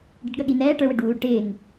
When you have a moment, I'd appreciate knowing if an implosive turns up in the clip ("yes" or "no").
yes